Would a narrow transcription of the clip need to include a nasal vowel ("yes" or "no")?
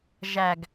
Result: no